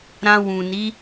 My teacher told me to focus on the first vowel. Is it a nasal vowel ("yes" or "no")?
yes